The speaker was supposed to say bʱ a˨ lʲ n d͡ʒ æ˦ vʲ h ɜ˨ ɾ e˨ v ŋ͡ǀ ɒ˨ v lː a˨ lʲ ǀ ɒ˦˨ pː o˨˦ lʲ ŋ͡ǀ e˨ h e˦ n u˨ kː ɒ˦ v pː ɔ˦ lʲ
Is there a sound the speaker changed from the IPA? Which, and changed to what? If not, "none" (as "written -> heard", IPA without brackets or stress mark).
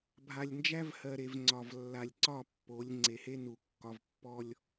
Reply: vʲ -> v